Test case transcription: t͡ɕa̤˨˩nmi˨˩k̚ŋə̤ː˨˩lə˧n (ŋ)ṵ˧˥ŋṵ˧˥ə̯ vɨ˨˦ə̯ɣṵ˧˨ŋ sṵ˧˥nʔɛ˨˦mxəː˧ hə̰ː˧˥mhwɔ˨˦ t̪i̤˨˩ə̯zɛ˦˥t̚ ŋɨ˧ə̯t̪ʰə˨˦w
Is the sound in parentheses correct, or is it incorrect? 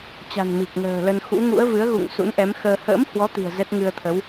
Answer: incorrect: x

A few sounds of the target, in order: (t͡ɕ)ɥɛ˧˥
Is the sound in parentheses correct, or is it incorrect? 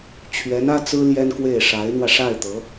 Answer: incorrect: t͡ɕʰ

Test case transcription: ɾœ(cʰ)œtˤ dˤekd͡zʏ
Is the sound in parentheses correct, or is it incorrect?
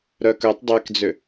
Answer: incorrect: k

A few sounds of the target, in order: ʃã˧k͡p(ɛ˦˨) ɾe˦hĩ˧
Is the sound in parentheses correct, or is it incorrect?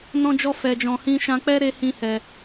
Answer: incorrect: ɛ˦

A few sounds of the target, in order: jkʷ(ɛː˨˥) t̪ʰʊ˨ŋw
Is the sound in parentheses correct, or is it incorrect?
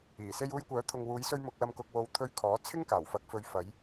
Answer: incorrect: œː˨˥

